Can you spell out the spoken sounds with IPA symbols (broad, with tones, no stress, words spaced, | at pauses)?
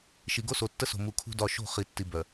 ʃi˨ ɡo˦so˨tːə˦so̤˨ mu˨kʰṳ˦dɒ˦˨ ʃo̤˦˨χi˨tːi˨ bœ˨